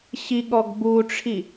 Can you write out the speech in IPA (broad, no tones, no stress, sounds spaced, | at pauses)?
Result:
ɕ i ɠ ɔ ɡ b u ʈ͡ʂʰ i